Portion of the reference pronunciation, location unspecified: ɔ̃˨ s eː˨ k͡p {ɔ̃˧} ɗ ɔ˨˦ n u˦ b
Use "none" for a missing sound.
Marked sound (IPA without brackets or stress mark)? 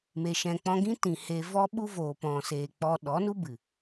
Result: ɔ˧